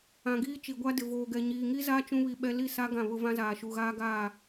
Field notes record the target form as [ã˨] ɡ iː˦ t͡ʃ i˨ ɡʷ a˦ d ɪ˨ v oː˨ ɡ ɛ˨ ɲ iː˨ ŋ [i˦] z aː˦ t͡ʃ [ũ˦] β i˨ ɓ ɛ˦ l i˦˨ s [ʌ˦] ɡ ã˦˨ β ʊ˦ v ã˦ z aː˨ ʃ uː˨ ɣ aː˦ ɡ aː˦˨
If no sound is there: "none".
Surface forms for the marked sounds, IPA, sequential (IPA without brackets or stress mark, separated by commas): ã˨, i˦, ũ˦, a˦